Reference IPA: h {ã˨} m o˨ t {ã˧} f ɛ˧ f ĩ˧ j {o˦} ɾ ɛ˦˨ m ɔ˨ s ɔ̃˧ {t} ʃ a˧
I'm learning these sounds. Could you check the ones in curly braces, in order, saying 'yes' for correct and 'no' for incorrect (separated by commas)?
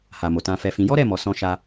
no, yes, no, no